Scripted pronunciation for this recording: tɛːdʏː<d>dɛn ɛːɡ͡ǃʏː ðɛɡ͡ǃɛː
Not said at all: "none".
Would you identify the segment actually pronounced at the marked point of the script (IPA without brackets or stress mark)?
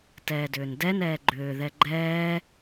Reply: n